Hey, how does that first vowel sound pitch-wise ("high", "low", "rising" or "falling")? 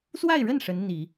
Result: falling